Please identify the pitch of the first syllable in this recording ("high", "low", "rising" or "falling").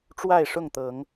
falling